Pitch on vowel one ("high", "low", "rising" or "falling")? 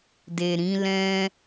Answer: low